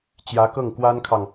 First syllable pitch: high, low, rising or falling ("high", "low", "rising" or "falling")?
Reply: rising